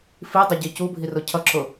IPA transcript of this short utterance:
fidˤʊɟi cubʱirʊ cʰʌǁʊ

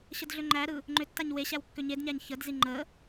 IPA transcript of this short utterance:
ɕədɮʏŋ͡ǃæɾɯ | ŋ͡ǃʏtːaɲ weɕæw kːʏɲedɲæɲ çədzi ŋ͡ǃə

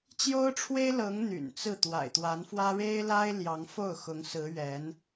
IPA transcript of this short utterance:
t͡ɕjo˥ʊ̯ʈ͡ʂʰwe˥ɪ̯lɤ˧˥ŋ n̪y̰˨˩nt͡sɹ̩˥˩ t̪wa̰˨˩ɪ̯t̪wa˧˥nfwä˥ ɻe˥ɪ̯la˥ɪ̯ ljɑ˧˥ŋ fo˥˩ʊ̯xʊ˧˥ŋsɹ̩˧˥ ɥɛ˧˥n

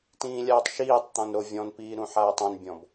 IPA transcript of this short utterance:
tĩːlʲaːtˤʃiːtˤt̪ɔ̃n ɾovʲɔ̃npiː ɾũħaːtˤõnbʲɔ̃b

